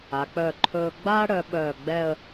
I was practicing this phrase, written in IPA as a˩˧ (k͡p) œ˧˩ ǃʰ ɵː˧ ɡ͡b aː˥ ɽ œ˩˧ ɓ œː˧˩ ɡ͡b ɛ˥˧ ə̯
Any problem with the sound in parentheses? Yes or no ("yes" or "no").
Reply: no